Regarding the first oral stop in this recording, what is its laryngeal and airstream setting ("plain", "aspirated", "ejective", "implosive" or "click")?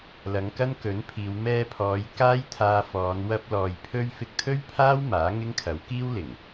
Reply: plain